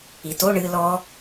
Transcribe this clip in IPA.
i t o ɳ ɨ l ɔ

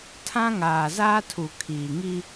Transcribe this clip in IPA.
tʰ ã˦ ŋ aː˨ z aː˦ tʰ u˨ kʰ iː˨ ŋ i˦

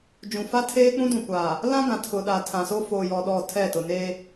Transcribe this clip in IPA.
d͡ʒ ũ˨ f a˦ tʰ eː˦ k͡p ũ˦ d ũ˨ kʷ a˨ | l ã˦ ɡ ã˨ tʰ ʊ˨ ɗ a˨ tʰ ã˨ s o˦ f oː˨ j ɔ˨ ɗ ɔ˦˨ tʰ ɛ˦˨ t ʊ˨ n e˦

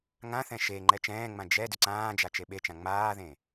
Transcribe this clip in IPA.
ŋ ã θ ɛ̃ ʃ e ŋ͡ǃ ɛ t͡ʃ ɛ̃ː ŋ͡m ã d͡ʒ ɛ d ʏ ǀ ãː d͡ʒ a t͡ʃ e ɓ e t͡ʃ ã ŋ͡m aː ð ẽ

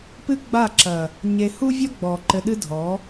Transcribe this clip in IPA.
p ɨ˦ ɡ͡b a˦˨ ǁ ɐ˨ | ɲ e˧ h u˦ vʲ ɔ˦ ɡ͡b ɔ˨ ǃ ɘ˧ ɗ ɨ˦ dʱ ɔ˨˦

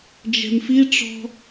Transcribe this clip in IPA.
d͡ʒ ɛ̤ m f i ʈ͡ʂ ɔ̤

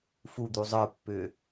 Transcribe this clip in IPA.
f u d̪ u zˤ ə˞ pː ʏː

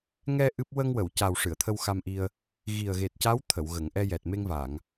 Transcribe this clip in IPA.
ŋ ɛ˧ ʔ ɨ˦˥ p̚ w ə˧ ŋ w ə˨˩˨ w c a˨˩ w ʂ ɨ˨˩˨ ə̯ t̪ʰ ə˧ w x a˧ m ʔ i˧ ə̯ | ɣ i˨˩ ə̯ ɣ e˨˩ t̚ c a˧˥ w t̪ʰ ə˨˩˨ w ɣ ə˨˩˨ ŋ ʔ ɛ˧ j ɛ˨˩ t̚ m e˧ ŋ v a˨˩˨ ŋ

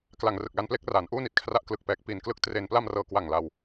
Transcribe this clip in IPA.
k l a˨˩ ŋ r ɯ˨˩ k̚ l a˧ n p l e˦˥ k̚ r aː˩˦ n ʔ uː˥˩ n i˨˩ t̚ kʰ r a˦˥ ʔ k l ɯ˨˩ k̚ p ɛː˨˩ k̚ p iː˨˩ n k l ɯ˦˥ k̚ t r e˧ n p l a˧ m r ɤː˨˩ k w a˨˩ ŋ l a˧ w

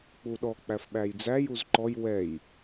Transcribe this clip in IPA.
k͡p u ɗ ɔ k͡p æ f ɓ æ j d͡z æ j u z ǃ ɔ j w ɛ j

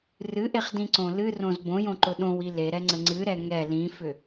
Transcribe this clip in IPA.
r ɨ ʔ e χ d ĩ ǀ õ l ɨ r õ z b õ j õ ǃ ʊ ɗ õ w i l e ɾ ɛ ŋ͡ǀ ə ŋ͡ǀ ɨ ɾ ɛ ŋ ɛ l ĩ f ʏ

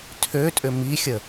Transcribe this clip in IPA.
tʰ ø tʼ ʏ m i xʲ ə

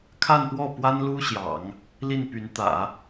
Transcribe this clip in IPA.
kʰ a˥˧ n p w ɔ˥˩ p w a˥ n l u˥ ɕ j ɑ̰˨˩˦ ŋ | l i˥˩ n p y˧˥ n t̪ ä̰˨˩˦

